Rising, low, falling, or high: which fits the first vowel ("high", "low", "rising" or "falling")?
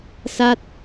falling